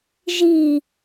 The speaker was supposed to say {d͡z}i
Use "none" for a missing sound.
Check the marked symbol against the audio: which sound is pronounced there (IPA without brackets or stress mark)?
ʒ